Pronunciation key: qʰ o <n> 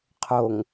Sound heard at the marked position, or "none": ŋ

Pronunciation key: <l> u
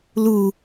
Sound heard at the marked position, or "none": l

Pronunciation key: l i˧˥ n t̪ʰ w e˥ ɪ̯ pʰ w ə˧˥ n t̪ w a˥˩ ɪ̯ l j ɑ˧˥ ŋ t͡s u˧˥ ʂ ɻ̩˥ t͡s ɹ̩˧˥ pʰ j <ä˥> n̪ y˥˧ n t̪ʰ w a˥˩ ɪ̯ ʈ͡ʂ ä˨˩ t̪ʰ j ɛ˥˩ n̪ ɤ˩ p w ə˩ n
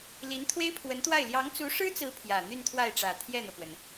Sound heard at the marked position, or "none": ä˨˩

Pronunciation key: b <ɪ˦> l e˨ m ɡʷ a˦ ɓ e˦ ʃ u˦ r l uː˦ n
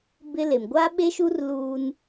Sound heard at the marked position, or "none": ɪ˦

